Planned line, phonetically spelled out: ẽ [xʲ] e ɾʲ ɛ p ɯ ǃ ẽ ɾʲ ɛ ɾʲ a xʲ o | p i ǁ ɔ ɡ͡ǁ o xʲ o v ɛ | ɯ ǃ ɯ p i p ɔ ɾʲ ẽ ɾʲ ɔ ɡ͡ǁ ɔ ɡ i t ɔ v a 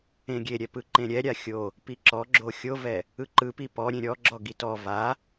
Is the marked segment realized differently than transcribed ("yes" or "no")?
yes